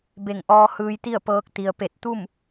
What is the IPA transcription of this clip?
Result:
b e˧˩ ŋ ʔ ɔː˧ h ɯː˧ j t̪ i˥˨ ə̯ p ɤː˧ k̚ t̪ i˩ ə̯ p e˧˩ t̚ t̪ u˥˨ m

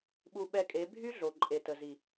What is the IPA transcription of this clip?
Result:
ɓ u˧ ɓ ɛ˧ kʼ e˨˦ bʱ y˦ ɮ o˨ ǃʼ e˨ t ə˨ z i˨

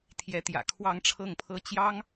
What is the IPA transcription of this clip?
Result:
t̪ʰ j ɛ˧˥ t̪ j ä̰˨˩ kʰ w ɑ˥˧ ŋ ʈ͡ʂʰ ɤ˥˩ ŋ pʰ ɤ˥ t͡ɕ j ɑ˥ ŋ

